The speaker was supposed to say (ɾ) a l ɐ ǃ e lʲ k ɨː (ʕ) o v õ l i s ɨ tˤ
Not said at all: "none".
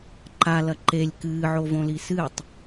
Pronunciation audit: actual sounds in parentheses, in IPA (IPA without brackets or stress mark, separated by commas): ǃ, ʕ